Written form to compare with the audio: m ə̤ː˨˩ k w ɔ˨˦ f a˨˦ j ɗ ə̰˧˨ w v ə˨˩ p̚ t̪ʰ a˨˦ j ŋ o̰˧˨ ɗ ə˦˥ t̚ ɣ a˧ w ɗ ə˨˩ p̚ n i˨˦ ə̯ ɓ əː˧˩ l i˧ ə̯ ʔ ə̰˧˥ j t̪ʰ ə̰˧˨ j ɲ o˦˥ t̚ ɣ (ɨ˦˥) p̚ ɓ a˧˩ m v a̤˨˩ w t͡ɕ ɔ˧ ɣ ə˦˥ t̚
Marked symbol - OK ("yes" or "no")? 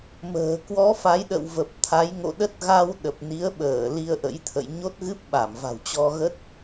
yes